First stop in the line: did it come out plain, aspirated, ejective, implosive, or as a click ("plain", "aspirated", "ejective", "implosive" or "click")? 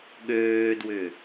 implosive